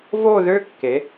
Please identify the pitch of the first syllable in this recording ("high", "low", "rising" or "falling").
falling